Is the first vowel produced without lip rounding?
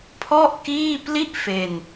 no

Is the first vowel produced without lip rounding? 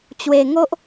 yes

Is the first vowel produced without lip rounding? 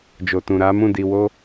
no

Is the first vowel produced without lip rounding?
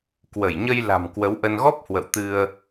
yes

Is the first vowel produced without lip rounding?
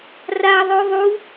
yes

